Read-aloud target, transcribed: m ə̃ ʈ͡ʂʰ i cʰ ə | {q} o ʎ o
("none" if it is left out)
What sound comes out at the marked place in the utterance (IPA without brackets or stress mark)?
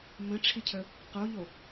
q